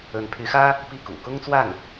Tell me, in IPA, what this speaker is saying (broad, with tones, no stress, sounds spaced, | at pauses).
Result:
ə˧˥ n pʰ y˧˥ x ä˥ | p i˥˩ k ṵ˨˩ k ʊ˥ ŋ t͡s w a˥˩ n